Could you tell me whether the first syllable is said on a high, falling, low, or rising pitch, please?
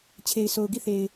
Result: low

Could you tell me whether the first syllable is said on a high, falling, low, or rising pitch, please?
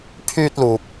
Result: high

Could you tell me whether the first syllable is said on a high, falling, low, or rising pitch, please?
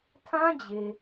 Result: high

